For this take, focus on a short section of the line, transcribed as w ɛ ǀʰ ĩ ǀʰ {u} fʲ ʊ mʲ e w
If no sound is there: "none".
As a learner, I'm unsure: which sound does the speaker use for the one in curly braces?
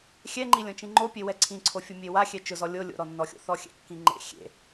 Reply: o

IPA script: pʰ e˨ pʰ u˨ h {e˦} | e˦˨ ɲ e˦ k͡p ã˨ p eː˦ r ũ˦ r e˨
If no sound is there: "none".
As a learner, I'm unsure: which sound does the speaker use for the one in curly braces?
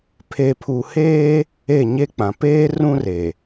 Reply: eː˦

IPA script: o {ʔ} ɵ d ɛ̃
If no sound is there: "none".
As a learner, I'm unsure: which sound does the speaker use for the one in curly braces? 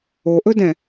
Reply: ʔ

